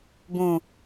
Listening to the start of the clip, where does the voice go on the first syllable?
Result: low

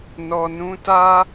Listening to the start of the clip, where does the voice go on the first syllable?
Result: low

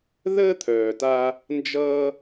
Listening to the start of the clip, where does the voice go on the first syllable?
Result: high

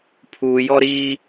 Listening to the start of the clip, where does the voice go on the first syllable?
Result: low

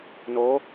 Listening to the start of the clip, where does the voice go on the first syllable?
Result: rising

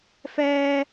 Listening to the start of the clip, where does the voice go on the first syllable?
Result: high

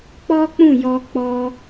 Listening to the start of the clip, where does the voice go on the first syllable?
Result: high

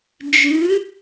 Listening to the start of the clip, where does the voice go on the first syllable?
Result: rising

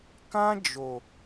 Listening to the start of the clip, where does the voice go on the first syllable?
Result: high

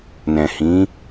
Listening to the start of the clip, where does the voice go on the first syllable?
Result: low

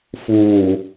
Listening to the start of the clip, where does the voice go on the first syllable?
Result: low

